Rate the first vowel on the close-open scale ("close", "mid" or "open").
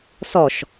mid